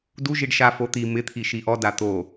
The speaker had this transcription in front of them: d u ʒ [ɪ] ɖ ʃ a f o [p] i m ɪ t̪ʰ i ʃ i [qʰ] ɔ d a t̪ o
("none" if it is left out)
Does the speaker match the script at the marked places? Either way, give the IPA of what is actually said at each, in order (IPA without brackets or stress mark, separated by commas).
i, t̪, ʔ